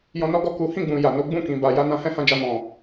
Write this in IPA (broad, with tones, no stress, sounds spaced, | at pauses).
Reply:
j ɔ̃˧ n ɔ˦ ɡ ɔ˦˨ k u˨˦ h ĩ˦˨ ɡ͡b ũ˨ j a˨ n o˨˦ ɡ͡b ũ˦˨ k ĩ˨ b a˨ j a˨˦ n ã˧ h ɛ̃˦ h ã˧ d͡ʒ a˧ m ɔ̃˨